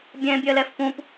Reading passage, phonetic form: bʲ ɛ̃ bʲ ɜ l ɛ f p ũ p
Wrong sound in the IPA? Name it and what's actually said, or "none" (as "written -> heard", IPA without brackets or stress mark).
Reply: none